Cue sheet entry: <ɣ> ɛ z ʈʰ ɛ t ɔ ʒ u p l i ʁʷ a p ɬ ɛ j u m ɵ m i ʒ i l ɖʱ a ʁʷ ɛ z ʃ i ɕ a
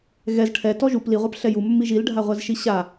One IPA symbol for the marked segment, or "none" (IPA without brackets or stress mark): ɣ